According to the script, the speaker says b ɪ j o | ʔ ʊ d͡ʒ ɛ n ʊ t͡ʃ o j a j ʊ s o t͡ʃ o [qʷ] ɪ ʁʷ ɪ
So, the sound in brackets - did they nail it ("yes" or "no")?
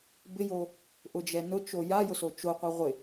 yes